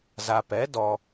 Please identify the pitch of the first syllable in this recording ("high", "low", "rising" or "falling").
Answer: low